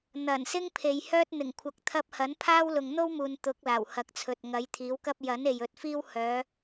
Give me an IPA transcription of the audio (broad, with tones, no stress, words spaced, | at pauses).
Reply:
n̪ɐ˨˩nsɪ˥ŋpʰe˨j hœː˥t̚n̪ɪ˨˩ŋ kʷʰɐ˨k̚t̪ʰɐ˧p̚ hɐ˨˥npʰaː˥w lʊ˨ŋn̪o˥wmuː˨n t̪ʊ˨˥k̚ laː˨˩whɐ˨k̚t͡sʰɵ˨t̚ ŋɐ˨˥jt̪ʰiː˨˥wkɐ˥p̚ jɐ˨˥n e˨jɵ˨t̚fiː˥w hœː˨˧